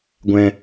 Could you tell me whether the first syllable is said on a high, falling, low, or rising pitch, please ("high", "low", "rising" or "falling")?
high